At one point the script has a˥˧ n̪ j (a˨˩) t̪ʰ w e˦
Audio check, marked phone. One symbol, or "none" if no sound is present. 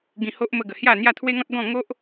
a˥˧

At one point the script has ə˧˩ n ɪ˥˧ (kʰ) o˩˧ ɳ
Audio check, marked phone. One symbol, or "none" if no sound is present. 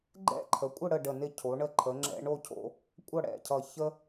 cʰ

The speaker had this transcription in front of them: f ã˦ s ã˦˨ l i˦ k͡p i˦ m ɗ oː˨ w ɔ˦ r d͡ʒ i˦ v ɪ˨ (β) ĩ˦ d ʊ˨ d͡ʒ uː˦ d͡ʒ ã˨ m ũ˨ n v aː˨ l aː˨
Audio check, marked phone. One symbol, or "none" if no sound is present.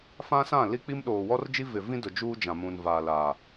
v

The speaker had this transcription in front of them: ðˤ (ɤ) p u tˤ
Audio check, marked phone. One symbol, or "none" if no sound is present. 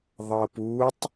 ɤ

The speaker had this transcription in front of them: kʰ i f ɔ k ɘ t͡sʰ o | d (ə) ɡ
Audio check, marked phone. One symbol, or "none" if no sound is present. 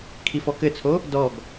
ɔ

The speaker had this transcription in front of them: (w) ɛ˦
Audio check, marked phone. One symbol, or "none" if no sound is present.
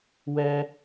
w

